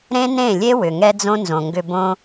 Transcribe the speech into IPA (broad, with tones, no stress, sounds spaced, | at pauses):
ɾ ẽ˦ n ẽ˦˨ lʲ e˦ w ʏ˨ ŋ ɛ˦ d͡z õ˦ n z õ˨ ŋ ɡ ʏ˧ b õ˦